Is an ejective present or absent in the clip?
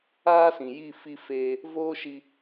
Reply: absent